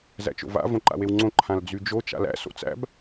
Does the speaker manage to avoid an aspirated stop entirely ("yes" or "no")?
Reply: no